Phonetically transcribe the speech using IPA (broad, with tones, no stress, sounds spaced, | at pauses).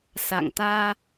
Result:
s a̰˧˨ ŋ t̪ aː˧